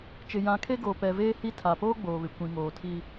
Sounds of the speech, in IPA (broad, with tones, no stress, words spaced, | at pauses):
t͡ʃɪ˨jã˨˦kʰe˦ ɡoː˨pɛ˨ veː˦ hi˦tʰa˨ poː˦ ɡ͡boː˨βɪ˨ kʷĩ˨ŋoː˨tʰi˦